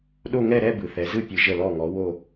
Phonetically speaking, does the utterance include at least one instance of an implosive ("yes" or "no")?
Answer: yes